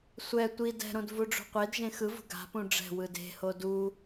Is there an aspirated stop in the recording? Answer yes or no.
no